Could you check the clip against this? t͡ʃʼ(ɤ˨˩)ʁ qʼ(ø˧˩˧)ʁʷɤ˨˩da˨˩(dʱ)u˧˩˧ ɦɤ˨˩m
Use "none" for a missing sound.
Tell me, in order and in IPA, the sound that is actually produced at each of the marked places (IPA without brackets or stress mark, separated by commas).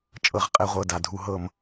ɤ˨˩, ɛ˧˩˧, dʱ